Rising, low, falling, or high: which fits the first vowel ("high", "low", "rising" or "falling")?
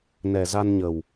low